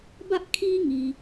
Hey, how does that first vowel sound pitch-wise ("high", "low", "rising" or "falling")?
high